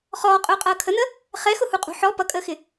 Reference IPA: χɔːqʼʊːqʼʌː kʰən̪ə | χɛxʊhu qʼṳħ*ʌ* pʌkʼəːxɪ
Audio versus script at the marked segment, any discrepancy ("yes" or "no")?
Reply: yes